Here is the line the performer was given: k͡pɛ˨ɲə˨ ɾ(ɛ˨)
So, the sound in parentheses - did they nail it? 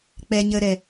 yes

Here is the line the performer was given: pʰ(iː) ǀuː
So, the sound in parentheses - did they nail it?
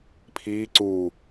yes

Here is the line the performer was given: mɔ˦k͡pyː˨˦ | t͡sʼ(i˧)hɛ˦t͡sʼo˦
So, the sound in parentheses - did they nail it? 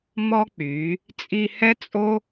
yes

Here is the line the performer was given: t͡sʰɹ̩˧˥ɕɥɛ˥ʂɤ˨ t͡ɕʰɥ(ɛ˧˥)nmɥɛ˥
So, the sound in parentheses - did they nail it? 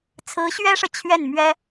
no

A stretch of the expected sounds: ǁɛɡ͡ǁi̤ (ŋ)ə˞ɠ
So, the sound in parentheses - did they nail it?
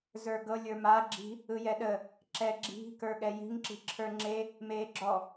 no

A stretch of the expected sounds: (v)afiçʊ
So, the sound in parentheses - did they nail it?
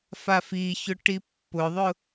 no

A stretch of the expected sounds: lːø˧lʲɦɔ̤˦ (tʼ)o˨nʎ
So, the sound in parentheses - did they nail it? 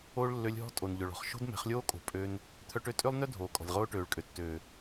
yes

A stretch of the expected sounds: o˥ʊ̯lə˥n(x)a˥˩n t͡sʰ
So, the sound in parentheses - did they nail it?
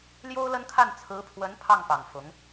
no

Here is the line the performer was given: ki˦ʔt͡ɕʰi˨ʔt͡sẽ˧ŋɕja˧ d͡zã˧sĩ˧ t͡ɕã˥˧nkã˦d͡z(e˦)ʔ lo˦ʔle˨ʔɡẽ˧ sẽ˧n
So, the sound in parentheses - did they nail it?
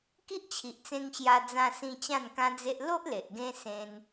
yes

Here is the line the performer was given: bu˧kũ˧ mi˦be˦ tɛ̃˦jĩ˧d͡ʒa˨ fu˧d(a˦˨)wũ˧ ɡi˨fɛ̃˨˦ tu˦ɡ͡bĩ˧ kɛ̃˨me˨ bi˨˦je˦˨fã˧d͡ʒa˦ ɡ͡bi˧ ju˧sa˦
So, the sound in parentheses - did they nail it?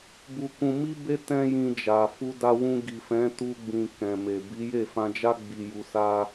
no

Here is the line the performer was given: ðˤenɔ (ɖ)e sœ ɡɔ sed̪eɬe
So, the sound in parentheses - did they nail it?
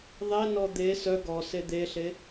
no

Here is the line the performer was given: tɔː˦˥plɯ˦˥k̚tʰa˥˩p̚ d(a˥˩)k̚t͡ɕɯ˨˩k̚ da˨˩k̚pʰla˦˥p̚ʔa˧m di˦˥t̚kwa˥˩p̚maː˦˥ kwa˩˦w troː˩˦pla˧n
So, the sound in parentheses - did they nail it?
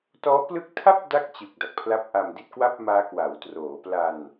yes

